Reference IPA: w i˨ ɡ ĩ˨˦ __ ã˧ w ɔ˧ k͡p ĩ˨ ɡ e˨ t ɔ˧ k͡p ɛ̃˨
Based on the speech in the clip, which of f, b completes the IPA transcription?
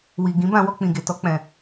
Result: b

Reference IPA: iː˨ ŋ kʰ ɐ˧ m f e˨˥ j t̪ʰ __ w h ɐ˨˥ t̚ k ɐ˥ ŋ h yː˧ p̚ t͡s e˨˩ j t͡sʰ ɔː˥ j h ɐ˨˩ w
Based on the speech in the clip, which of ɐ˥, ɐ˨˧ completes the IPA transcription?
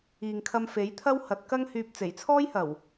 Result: ɐ˥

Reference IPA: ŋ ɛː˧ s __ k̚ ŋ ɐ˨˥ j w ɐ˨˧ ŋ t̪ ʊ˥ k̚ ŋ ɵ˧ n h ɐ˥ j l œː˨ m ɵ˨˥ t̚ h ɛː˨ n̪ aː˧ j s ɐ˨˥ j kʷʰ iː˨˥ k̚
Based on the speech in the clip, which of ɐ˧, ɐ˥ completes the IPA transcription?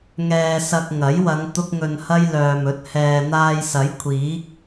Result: ɐ˧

